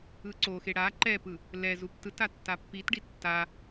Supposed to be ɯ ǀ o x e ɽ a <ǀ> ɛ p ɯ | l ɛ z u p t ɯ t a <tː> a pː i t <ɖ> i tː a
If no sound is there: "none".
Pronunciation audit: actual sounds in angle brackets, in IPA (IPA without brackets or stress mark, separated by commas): ǃ, tː, ɖ